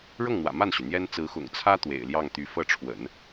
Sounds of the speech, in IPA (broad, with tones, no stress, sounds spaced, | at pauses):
ɻ ɤ˥˩ ŋ n̪ w ä̰˨˩ m a˥˩ n ɕ y˩ n̪ j ɛ˥ n t͡s ɹ̩˧˥ x ʊ̰˨˩ ŋ t͡sʰ ä˥ t̪ w ḛ˨˩ ɪ̯ l j ɑ˥˩ ŋ t̪ y˧˥ f ɤ˥˩ ʈ͡ʂʰ w ə̰˨˩˦ n